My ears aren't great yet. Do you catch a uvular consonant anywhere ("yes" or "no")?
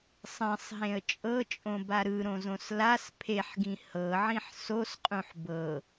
yes